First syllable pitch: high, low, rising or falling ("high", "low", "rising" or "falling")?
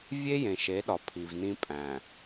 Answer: high